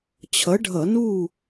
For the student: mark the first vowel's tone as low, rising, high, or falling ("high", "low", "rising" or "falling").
rising